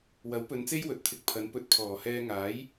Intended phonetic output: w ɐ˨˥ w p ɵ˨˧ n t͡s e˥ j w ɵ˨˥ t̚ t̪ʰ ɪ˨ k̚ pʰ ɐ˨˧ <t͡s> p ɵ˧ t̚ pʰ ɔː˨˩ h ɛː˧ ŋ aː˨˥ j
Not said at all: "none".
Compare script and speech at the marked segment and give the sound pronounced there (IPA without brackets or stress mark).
n